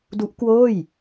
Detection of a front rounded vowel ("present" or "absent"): absent